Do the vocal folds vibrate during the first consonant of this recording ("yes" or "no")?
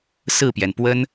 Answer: no